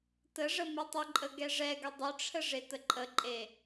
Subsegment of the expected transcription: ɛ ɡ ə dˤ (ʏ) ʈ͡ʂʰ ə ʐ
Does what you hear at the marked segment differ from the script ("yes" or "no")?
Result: no